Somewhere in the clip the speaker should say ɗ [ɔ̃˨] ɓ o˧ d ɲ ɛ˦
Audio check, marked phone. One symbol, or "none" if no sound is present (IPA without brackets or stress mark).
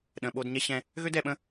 ə̃˨